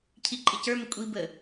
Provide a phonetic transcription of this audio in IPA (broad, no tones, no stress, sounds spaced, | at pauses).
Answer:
cʰ i ǃʼ ɪ c ə˞ m ɪ kʷʼ i b ə